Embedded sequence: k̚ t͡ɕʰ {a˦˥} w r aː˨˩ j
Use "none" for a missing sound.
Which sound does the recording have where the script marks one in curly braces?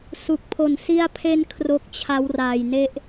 a˦˥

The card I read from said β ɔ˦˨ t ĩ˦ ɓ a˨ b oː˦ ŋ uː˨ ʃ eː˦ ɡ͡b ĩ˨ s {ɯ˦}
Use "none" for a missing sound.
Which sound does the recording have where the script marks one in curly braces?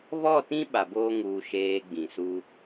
u˦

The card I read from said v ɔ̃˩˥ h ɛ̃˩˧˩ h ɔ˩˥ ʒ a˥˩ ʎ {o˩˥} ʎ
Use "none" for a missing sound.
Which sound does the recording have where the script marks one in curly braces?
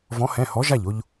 o˧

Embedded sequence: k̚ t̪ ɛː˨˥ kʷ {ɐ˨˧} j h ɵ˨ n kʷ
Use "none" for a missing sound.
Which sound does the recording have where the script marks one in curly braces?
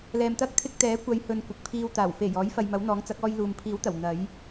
ɐ˨˧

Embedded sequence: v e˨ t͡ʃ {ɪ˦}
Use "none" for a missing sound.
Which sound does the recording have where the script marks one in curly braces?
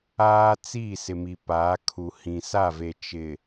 ɪ˨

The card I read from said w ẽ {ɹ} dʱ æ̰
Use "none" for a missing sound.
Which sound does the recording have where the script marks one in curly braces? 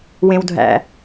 w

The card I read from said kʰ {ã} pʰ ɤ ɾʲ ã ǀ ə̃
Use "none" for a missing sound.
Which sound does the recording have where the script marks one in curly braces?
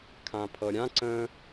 ã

